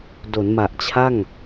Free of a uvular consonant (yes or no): yes